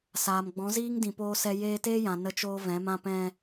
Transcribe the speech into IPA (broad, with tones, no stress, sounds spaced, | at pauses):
s aː˨ m ɡ͡b ɔ̃˨˦ z iː˦ ŋ d ĩ˧ p oː˦ s ɛ˦ j eː˧ t eː˦ j ã˨ n ə˧ t͡ʃ oː˦ v ɛ̃˨˦ m ã˦ p ɛ̃˧